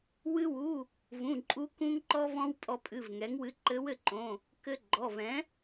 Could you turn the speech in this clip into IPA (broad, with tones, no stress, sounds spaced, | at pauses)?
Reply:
w ɨ˧ w u˩˧˩ | v ũ˩˧˩ ǃʼ u˧ k ũ˧ ŋ ǃ ɔ˧ v ɔ̃˧ w pʼ ɔ˧ pʼ ɨ˩˧˩ v ŋ ɛ˩˥ ŋ w ɨ˧ ǃ ɘ˧˥ w ɘ˧ ǃ õ˩˧˩ | k ɘ˧ ɡ͡ǃ ɔ˩˧˩ v ɛ̃˩˥